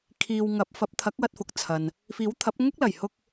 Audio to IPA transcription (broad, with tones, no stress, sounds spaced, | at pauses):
kʰ iː˨ w ŋ ɐ˨˥ p̚ f ɐ˨˥ p̚ t̪ʰ ɐ˨˥ k̚ w ɐ˧ t̚ f ʊ˨ k̚ t͡sʰ ɐ˨ n | f iː˨˥ w t̪ʰ ɐ˨˥ p̚ ŋ ʊ˥ k̚ l ɐ˨˩ j h ʊ˧ k̚